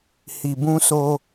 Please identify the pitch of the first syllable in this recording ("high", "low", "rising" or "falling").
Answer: low